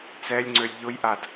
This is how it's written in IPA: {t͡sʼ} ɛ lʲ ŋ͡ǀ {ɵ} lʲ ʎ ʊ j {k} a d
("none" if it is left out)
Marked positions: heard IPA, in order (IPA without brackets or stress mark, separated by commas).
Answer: t͡s, ø, ʔ